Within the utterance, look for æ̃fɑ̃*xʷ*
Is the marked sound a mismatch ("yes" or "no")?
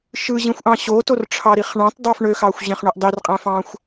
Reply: no